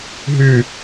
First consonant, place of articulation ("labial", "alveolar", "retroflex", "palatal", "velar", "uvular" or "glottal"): glottal